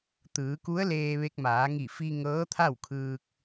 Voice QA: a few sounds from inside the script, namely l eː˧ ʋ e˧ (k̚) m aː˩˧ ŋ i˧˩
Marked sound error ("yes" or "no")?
no